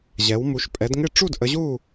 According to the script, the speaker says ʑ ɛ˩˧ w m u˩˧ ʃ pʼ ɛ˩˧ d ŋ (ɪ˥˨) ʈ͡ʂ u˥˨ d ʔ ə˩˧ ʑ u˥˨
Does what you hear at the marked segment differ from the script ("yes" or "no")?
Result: no